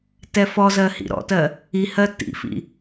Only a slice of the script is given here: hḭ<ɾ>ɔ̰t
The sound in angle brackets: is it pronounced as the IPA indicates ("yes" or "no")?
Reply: yes